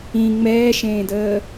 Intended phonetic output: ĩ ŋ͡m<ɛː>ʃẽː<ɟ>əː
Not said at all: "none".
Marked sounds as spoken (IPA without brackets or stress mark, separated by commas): ɛː, d